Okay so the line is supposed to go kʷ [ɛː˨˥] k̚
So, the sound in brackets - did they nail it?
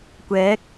yes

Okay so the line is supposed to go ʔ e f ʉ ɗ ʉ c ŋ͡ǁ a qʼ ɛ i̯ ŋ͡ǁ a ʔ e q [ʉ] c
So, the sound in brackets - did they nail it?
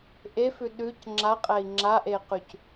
yes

